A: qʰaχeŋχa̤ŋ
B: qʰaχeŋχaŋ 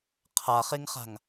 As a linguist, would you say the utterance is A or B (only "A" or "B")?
A